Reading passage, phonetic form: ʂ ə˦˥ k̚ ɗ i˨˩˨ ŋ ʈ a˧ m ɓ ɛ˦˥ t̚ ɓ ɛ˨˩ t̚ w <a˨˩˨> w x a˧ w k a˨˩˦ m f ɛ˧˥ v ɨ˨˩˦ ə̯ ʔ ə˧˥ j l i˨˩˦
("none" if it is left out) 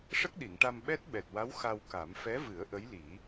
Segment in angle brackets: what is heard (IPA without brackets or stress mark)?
a˧˥